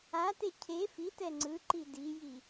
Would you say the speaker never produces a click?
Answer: no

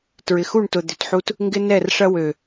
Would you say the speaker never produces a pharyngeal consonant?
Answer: no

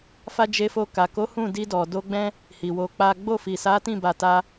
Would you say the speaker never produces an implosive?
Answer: yes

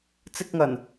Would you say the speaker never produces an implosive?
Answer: yes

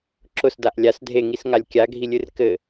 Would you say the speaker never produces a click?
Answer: no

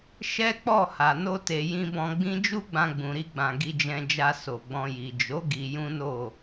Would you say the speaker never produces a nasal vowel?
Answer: no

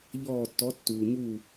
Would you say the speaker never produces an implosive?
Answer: yes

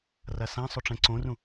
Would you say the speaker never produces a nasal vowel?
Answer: no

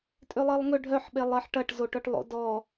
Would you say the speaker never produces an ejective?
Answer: no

